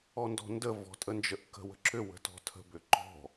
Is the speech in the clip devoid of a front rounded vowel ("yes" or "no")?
no